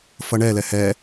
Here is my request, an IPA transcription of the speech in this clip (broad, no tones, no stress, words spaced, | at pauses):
fʌɳɛlɛ hɛ